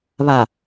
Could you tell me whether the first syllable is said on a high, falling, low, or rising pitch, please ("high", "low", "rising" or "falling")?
low